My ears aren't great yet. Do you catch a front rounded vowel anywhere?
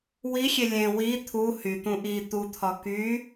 yes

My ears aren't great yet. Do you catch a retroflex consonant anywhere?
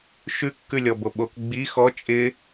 no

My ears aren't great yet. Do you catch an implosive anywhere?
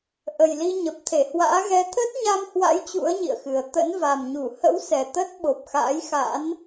yes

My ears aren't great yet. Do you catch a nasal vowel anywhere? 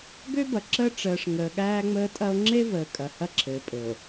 no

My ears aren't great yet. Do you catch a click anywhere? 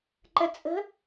yes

